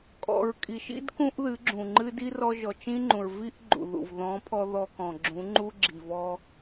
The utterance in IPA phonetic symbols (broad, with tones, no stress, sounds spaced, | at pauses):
kʼ ɔ̰˨ ɹ kʼ i˨ ʃ ḭ˦ d k ũ˦ ʔ ð ɨ˨˦ ɡ͡ǁ ũ˨ ŋ͡ǃ ɨ˦ d i˦ r ɔ˧ ʒ ɔ˨ t͡ʃ ĩ˦ ŋ͡ǃ ũ˨ ɹ v i˦ ʔ ɡ͡ǃ ṵ˨ ð ṵ˨ v ð ɔ̃˨˦ pʰ ɔ˧ ð ɔ˧ k ɔ̃˨ ɡ͡ǁ ũ˨˦ ŋ͡ǃ u˦ ɡ͡ǁ i˨ v ɔ˧